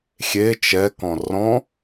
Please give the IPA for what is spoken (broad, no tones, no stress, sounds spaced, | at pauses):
xʲ e t͡ʃ ɛ k ɔ̃ r ɔ̃